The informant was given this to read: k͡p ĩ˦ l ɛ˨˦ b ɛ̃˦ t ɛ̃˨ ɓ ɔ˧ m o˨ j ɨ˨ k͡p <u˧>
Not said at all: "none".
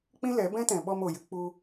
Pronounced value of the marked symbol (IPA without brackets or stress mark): u˧